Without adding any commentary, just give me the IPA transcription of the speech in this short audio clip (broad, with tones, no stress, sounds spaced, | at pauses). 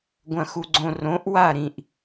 ɡʷ ɐ̃˨ x u˨ ɡ͡ǀ õ˨ r õ˨˦ ʔ w a˦˨ ɾ ĩ˨ ʔ